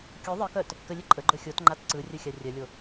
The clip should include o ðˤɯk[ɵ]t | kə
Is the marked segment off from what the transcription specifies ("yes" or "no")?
yes